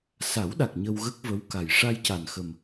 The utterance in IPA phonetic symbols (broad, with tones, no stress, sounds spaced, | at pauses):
s a˨˩˦ w ɗ a˨˩ k̚ ɲ ə˧ w ɣ ə˦˥ k̚ v ə˧˥ w k a˨˩ j ʂ a˧ j c a˨˩ n x ə˨˩ m